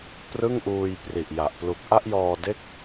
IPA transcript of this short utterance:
p r ɯ˥˩ ŋ ʔ uː˧ j p r i˨˩ ʔ j a˨˩ ʔ p l u˨˩ k̚ ʔ a˥˩ ʔ j ɔː˧ d e˥˩ k̚

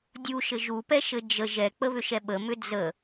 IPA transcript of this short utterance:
dʲ u ʃ ɘ ʒ u p ɛ ʃ ɘ d͡ʒ ə ʒ ɛ k͡p ə β ʏ ʃ ɛ ɓ ə m ʏ d͡z ə

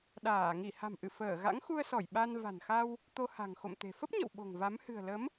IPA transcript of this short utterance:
ɗ aː˧˩ ŋ i˧˩ h a̤˨˩ m ʔ ɨ˧˩ f əː˧˩ ɣ a̰˧˥ ŋ x u˧ ə̯ s ɔ˧˩ j ɓ a˧ n v a̤˨˩ n x a˧ w | t̪ o˧ h a̤˨˩ ŋ x o̰˧˨ m t̪ e̤˨˩ f ə˦˥ p̚ ɲ ə̰˧˨ w ɓ o̤˨˩ ŋ v a˨˦ m h ɨ̤˨˩ ə̯ l ə˨˦ m

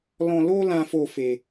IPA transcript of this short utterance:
l ɔ̃˧ l o˦ l ã˧ f o˧ f e˧

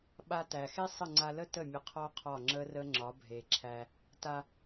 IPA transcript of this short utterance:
ɓ a˧ t æ˨ x e˦ sˤ ə˦˨ ŋ͡ǀ a˧ l ə˦ t ə˦˨ mʲ ə˧ qʰ ɔ˦ qʰ ɒ˦˨ ŋ͡ǁ ə˦ r ə˦ ŋ͡ǁ ɒ˨˦ bʱ e˨ ǁʰ æ˧ | t a˧

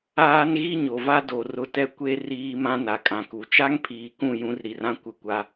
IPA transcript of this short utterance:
aː˦ n ɣ i˦ ɲ o˨ v a˦ d o˨ r ʊ˨ t ɛ˨ kʷ e˦ r iː˦ m ã˦ n a˨ kʼ ã˨ k u˨ t͡ʃ a˦ ŋ pʰ iː˨ k ũ˦˨ j ũ˦ r ɾ i˨ r ã˦ kʷ ɪ˦˨ kʷ a˦

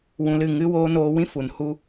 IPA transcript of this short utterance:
w ũ˧ l ɨ˦˨ ŋ ɨ˧ w oː˧ n oː˧ w ĩ˦ f u˨ n h u˦

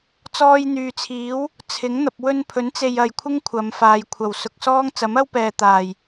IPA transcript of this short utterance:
t͡s ɔː˧ j n̪ yː˨ t͡sʰ iː˨˥ w | t͡sʰ ɪ˨˥ ŋ n̪ ɐ˨ p̚ w ɵ˧ n pʰ ɵ˨˥ n t͡s e˨ j ɐ˨ j kʷʰ ɪ˥ ŋ kʷʰ ɐ˨˧ m f aː˨ j kʷʰ ɐ˨˩ w s ʊ˨ k̚ s ɔː˥ ŋ t͡s ɐ˨˥ m ɐ˥ w p ɛː˨ t̪ aː˨˩ j

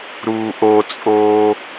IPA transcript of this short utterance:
ɾ uː ʔ o t͡sʼ oː

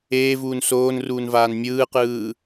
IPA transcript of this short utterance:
eː v uː n s oː n r uː n v aː n mʲ ɯː q ɯː

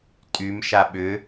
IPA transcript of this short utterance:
tʼ y m ʃ a ɓ ʏ

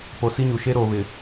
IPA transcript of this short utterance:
p o˨ s i˦ ɲ u˨ ʃ e˦ ɾ oː˨ β ɪ˨

